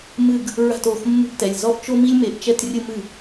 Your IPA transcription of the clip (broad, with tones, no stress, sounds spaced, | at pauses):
m ɨ˥˧ ɡ | ɹ a̤˥˧ t o˩˧˩ x mː ṳ˥˧ ɡ t ɛ˩˧˩ lʲ z ɔ˥˧ ʔ t͡ʃ o˥ m i˥ lʲ m e˧ ʔ t͡ʃ ɛ˥˧ t rʲ ɨ˥˧ m ɨ˥˩